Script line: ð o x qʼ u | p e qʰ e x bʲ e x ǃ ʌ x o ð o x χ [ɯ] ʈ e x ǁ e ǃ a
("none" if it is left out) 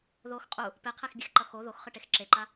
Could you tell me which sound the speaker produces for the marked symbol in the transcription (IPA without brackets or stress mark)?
ɯ